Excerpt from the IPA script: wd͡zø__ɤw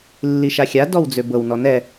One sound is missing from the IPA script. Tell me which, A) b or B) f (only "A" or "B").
A